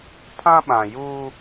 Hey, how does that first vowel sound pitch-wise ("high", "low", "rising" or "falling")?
high